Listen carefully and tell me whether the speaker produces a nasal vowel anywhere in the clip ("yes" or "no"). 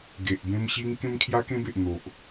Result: yes